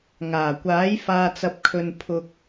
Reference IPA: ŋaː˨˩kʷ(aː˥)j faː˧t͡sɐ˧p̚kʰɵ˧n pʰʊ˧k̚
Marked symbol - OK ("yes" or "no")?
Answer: no